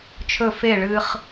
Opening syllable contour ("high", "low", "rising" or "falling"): falling